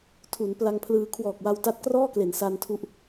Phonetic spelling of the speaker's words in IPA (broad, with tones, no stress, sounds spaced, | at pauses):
tʰ u˩˦ n p l a˧ ŋ pʰ l ɯː˧ kʰ w ɔː˨˩ k̚ w a˧ w t a˦˥ t̚ k r ɔː˥˩ k l e˩˦ n s a˧ n tʰ u˦˥ ʔ